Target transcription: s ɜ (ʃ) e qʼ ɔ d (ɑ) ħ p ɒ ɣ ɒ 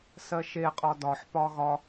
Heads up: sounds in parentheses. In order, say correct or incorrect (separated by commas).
correct, incorrect